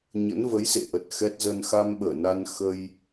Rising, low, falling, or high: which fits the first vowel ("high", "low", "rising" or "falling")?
rising